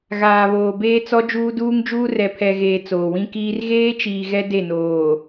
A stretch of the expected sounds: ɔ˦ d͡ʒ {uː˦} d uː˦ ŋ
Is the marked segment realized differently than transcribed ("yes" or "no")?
no